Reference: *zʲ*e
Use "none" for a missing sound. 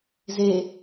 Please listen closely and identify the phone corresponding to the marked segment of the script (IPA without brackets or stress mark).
z